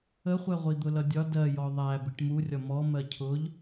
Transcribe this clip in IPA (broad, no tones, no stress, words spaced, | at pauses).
əχʷɛ ʁʷid̪ʊlʌdʲɒ dɜjɔ ðˤæ biʈmurʲɒ mɔmɜ cʰʊʎ